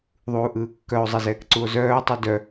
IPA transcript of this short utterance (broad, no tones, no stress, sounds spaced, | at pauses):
ðˤ uː ʔ ɯː kː œ o̯ zˤ ɛ z ɛː k ǀ u o̯ z œː tˤ ʉ d œ